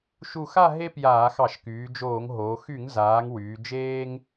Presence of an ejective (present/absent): absent